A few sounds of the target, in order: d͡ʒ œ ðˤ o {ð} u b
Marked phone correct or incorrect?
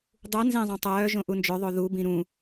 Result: correct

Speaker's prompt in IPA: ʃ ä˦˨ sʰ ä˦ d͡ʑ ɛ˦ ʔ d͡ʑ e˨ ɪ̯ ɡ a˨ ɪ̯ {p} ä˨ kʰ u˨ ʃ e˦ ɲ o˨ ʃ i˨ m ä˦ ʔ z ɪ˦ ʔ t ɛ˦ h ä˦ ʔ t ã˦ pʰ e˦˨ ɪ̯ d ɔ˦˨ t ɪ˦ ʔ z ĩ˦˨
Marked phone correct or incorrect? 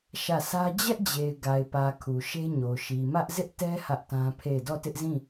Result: correct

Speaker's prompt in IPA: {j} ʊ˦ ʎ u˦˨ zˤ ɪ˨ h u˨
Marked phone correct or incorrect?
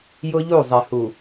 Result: correct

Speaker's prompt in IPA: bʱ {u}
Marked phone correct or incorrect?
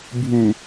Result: correct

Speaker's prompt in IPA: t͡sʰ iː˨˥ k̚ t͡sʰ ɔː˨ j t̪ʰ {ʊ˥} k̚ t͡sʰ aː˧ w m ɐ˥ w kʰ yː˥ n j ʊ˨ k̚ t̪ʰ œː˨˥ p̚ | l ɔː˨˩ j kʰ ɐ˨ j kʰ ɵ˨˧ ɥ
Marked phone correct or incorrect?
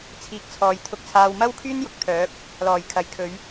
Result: incorrect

